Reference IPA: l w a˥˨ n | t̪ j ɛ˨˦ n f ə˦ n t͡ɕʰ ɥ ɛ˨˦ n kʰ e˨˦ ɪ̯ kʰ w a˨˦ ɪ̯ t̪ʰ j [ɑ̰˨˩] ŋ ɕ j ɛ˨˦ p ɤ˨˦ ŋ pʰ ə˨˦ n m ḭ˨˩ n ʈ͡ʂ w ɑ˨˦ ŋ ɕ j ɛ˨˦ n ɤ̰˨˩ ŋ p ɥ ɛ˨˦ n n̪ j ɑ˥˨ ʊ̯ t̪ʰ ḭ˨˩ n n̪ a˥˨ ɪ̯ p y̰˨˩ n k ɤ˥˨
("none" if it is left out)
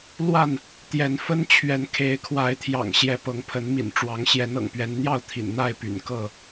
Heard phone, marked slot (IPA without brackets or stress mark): ɑ̰˨˩